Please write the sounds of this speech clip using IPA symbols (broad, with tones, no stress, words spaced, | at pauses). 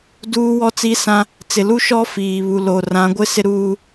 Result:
duː˦wɔ˦t͡si˦sã˦ | t͡sɪ˨lu˦ʃɔ˦ fiː˨ βu˨lo˨rã˨˦ɡʷɪ˦ sɪ˦ɾuː˦